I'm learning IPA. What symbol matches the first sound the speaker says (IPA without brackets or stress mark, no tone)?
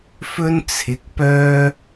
f